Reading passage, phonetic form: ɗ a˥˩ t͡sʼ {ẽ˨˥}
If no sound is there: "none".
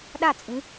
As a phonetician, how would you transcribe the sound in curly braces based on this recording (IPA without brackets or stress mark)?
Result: ĩ˨˥